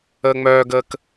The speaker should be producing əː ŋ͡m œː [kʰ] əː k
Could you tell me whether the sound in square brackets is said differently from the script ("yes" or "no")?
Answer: yes